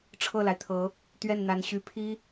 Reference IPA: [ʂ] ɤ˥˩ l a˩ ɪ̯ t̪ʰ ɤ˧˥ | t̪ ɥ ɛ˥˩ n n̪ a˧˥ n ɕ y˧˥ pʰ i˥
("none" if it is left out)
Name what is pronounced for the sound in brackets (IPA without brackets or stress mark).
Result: ʈ͡ʂʰ